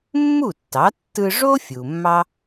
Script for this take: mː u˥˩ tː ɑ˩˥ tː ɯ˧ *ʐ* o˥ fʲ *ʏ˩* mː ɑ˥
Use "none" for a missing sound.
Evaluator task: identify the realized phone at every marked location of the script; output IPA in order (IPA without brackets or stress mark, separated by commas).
ʐ, u˩